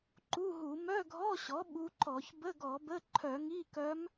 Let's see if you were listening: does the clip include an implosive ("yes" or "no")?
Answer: yes